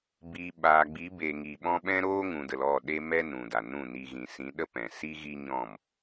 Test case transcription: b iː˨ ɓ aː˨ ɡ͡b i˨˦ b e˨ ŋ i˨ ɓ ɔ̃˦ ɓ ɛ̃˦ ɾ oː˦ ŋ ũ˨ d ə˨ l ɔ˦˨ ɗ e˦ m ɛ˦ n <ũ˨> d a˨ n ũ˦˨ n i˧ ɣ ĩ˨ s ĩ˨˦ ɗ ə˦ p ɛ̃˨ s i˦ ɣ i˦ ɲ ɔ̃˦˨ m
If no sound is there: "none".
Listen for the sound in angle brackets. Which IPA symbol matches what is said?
ũ˨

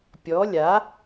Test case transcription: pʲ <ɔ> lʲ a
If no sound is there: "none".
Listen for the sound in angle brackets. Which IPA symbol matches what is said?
ɔ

